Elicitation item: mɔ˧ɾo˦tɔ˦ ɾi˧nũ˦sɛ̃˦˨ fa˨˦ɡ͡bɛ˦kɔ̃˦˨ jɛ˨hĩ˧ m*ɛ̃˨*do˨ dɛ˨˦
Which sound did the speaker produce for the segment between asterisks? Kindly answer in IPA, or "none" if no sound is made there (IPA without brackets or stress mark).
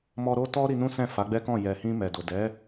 ɛ˨